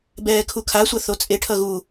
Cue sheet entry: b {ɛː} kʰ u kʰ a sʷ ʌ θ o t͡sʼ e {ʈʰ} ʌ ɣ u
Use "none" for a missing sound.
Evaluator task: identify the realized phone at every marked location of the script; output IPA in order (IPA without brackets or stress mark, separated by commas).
ɛː, ʈʰ